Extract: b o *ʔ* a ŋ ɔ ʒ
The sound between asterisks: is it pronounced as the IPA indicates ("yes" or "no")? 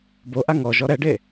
yes